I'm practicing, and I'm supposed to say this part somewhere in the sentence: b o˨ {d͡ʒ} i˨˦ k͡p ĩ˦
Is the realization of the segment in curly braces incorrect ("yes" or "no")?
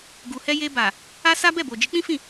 no